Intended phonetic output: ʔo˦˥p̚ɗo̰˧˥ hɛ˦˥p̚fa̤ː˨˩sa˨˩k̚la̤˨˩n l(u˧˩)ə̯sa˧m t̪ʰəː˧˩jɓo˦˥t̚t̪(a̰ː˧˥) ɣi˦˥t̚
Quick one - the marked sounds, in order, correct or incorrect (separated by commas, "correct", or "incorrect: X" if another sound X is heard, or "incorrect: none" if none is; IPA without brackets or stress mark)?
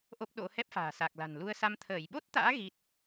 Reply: incorrect: u˧, correct